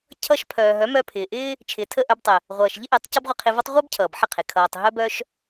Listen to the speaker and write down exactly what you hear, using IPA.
cʰ ʌ˧ ʃ pʰ œː˨ ɦ œ˨˦ m œ˧ pʰ ɪː˨ ʔ ɪː˦ | t͡ʃʰ ɪː˨ tʰ ə˦˨ ʔ œ˧ b tˤ ɪ˨ | ʁʷ ʌː˨ ʃ ʎ ɪ˦ ʔ e˨˦ tˤ c ʌ˦ b ʁʷ ɪ˧ qʰ ɪ˧ v ʌ˦ tˤ ʁʷ œ˦ b cʰ ʌː˨ b ħ ɪ˦˨ qʰ e˨ kʰ ʌː˨ tˤ ɦ œ˦ b œ˦ ʃ

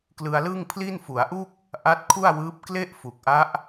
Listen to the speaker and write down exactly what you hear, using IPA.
k l ɯ˧ a̯ l ɯ˥˩ ŋ pʰ l i˥˩ n f u˩˦ a̯ ʔ u˥˩ k̚ | ʔ a˦˥ t̚ kʰ u˥˩ a̯ w ɯː˦˥ p̚ k l e˥˩ ʔ f u˨˩ k̚ ʔ a˦˥ ʔ

